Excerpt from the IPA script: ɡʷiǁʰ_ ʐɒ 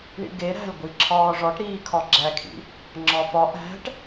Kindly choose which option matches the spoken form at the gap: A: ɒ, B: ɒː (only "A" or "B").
B